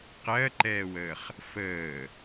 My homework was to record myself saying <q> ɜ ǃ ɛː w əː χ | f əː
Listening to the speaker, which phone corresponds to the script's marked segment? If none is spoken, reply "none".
q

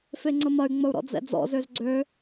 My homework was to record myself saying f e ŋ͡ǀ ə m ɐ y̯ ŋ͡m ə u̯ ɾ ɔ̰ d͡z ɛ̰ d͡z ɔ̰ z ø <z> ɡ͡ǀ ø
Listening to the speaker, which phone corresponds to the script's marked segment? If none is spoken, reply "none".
z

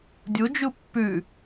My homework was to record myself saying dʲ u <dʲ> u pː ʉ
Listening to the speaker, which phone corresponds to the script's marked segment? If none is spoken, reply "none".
d͡ʒ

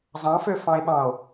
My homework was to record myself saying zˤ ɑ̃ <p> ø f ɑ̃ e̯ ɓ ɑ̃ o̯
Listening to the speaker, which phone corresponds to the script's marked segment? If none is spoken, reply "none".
f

